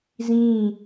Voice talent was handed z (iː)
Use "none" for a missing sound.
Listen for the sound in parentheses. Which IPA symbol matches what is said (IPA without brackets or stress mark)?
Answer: ĩː